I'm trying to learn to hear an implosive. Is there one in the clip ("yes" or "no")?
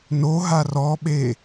yes